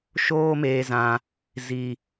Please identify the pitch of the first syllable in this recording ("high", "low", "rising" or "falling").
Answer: high